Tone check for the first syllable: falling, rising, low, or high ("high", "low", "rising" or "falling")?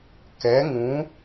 rising